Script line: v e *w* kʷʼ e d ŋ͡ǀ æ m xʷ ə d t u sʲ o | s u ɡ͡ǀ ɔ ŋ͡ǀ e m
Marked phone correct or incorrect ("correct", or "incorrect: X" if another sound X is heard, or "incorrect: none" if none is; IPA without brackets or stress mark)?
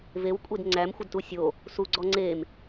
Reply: correct